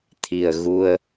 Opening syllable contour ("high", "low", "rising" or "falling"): low